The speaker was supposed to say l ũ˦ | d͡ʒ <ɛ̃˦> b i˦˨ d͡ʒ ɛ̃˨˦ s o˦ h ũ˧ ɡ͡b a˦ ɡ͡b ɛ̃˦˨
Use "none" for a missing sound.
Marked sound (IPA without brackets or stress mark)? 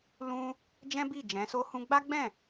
ɛ̃˦